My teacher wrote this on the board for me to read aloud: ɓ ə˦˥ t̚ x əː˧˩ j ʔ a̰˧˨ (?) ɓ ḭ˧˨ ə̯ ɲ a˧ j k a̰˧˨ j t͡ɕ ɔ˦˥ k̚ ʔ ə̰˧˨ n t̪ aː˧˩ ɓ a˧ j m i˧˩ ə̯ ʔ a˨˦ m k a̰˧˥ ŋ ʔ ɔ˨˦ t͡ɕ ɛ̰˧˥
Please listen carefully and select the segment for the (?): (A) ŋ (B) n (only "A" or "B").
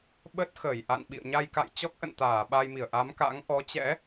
B